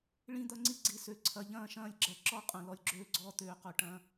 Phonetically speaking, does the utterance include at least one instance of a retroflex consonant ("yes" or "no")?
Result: yes